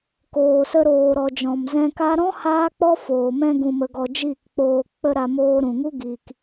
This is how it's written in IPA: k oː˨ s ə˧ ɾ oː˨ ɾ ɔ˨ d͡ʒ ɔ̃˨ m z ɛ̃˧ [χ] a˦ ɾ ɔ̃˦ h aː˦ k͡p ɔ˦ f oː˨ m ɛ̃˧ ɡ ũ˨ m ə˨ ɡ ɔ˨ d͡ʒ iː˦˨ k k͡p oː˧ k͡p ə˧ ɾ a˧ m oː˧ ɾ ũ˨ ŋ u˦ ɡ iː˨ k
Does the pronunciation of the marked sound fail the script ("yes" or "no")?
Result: yes